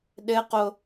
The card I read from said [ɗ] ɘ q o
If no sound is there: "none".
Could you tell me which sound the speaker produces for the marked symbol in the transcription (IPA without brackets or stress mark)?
ɗ